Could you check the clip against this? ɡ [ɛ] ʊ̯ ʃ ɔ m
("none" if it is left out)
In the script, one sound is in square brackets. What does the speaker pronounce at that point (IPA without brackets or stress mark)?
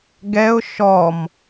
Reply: ɛ